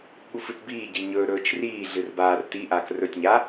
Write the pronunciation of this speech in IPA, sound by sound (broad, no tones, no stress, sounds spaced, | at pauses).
ɠ u f ɨ t b iː ɟ i ɲ ɵ ɾ ɵː t͡ʃ r iː ɮ ɨ r b aː r t i ʔ aː k r ɵ tʲ ɲ a